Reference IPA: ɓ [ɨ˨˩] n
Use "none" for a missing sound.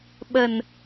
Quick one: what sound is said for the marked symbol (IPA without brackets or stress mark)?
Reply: ə˨˩